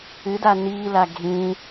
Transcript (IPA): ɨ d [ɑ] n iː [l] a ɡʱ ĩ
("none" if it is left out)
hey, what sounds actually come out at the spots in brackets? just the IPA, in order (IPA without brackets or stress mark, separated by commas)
a, l